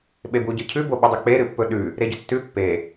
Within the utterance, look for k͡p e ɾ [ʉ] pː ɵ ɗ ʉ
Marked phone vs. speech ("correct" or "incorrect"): incorrect